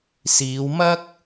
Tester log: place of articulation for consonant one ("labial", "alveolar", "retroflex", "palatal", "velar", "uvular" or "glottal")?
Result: alveolar